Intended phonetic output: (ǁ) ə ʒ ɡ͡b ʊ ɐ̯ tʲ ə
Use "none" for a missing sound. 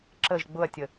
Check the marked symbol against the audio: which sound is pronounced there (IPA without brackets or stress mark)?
ǁ